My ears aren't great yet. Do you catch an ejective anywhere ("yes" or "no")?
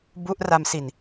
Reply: no